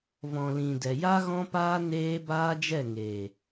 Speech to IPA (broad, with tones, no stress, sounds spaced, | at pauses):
v ɔ̃˨ l ĩ˨ d ɛ˨ j a˦ ɣ ɔ̃˦ p aː˦ n eː˦ b aː˦ d͡ʒ ɛ˦˨ ŋ eː˨